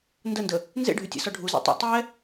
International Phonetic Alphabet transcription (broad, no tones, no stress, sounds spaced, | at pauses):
n d ə n d ə | n z ḛ ɖʱ y tʲ ɛ̰ s ɔ ɖʱ u z ɛ̰ tˤ ḛ tˤ ɛ